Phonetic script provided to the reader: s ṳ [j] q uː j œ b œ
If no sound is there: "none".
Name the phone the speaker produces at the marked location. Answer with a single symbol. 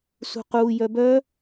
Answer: none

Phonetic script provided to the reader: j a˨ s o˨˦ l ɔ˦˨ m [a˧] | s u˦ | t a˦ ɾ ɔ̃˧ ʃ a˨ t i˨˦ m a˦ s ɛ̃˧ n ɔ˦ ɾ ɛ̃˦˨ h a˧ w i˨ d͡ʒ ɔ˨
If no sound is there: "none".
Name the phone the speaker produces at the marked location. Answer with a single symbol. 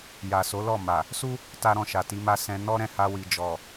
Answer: a˨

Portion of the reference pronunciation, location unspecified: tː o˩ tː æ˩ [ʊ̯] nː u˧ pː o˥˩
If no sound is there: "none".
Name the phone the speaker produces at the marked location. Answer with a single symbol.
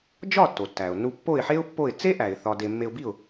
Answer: ʊ̯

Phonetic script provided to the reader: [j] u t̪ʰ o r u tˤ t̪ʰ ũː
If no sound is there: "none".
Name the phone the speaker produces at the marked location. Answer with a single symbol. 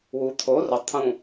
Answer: w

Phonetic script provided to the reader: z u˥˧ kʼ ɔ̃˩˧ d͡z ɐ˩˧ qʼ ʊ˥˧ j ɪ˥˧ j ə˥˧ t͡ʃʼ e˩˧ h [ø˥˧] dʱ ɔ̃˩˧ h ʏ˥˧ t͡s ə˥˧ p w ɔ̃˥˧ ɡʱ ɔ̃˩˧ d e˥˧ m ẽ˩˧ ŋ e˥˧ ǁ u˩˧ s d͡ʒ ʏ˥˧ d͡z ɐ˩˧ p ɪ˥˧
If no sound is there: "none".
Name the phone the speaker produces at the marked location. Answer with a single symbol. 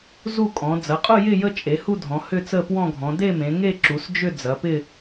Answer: u˥˧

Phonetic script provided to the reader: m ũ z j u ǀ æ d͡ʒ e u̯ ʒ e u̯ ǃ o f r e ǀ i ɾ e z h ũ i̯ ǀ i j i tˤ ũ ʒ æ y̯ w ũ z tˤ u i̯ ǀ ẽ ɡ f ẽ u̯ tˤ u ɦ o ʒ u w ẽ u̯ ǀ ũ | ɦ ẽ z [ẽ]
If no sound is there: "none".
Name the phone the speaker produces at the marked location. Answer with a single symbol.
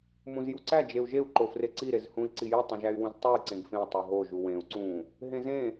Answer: ẽ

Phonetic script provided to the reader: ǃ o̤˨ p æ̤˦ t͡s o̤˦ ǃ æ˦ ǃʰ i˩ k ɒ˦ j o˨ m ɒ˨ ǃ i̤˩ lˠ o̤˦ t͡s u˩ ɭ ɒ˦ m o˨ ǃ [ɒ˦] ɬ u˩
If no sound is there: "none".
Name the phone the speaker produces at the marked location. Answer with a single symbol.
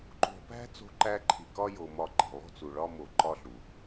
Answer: ɒ˦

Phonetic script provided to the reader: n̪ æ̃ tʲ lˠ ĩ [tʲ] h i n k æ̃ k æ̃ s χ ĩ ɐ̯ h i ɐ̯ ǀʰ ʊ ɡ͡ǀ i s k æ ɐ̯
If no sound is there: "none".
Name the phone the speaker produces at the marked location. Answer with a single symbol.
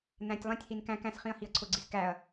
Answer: tʲ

